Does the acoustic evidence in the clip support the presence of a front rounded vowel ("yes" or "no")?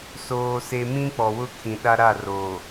no